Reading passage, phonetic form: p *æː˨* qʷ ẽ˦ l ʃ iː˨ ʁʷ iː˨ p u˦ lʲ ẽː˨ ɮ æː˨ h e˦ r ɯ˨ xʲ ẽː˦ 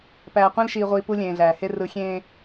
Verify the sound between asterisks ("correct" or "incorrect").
correct